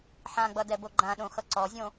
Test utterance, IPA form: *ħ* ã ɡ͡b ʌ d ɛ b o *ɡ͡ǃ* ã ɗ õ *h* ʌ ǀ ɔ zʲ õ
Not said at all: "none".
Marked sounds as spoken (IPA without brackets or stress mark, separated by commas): ħ, ɡ͡ǃ, x